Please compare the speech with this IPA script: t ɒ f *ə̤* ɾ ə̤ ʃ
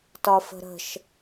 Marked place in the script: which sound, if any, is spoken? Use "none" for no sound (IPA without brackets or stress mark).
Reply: ə̤